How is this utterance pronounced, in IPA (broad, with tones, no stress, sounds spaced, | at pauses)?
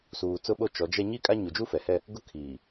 s uː˨ t͡s ʊ˦ ɓ o˦ t͡ʃ ɔ˨˦ d͡ʒ ɛ˦ ɲ i˦ kʼ a˦ ɲ u˨ d͡ʒ u˦ f ɛ˨ h ɛ˦ | ɡ ʊ˦ kʰ i˨